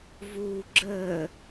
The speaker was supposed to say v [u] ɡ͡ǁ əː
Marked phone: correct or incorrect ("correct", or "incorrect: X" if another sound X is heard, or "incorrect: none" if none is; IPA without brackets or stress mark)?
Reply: incorrect: uː